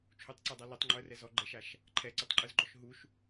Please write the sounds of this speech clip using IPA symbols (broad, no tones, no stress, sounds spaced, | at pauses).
t͡ʃʰ u tˤ ǀ ɯ dˤ a l ɛ tˤ ŋ͡ǃ o ə̯ r ɛ z ɔ ɡ͡ǃ ɛ ʃ a ʃ | ǃʰ ɛ ǀ i tˤ ǃʼ ɯ z ɡ͡ǃ ɔ ʃ ɦ u ʃ